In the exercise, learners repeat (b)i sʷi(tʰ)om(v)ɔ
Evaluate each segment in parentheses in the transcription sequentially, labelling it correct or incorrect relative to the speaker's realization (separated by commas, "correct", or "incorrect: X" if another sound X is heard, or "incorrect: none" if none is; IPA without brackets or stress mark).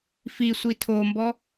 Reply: incorrect: f, correct, incorrect: b